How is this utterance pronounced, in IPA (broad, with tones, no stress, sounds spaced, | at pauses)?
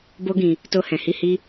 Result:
b o˦ ɡ ĩ˧ | t o˧ h ɛ̃˨ h i˧ h i˦